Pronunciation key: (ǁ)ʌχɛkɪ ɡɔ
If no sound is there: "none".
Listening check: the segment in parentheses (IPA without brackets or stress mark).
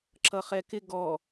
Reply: ǁ